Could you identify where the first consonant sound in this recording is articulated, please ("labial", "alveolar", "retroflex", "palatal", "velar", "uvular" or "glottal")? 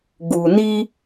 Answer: velar